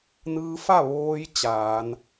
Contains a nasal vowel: no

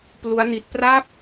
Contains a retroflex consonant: no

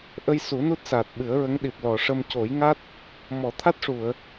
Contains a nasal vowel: no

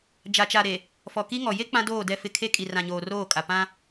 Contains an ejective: yes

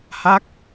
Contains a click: no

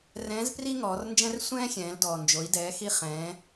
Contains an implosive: no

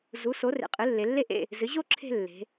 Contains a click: yes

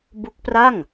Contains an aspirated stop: no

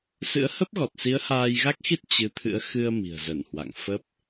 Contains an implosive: no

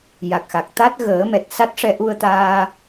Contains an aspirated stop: no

